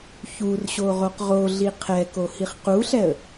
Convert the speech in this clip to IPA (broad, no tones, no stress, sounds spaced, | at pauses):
ç u r ɕ o ʁ o q ʁ o ɮ i qʰ ɛ k o h i χ q u ɬ ɛ ə̯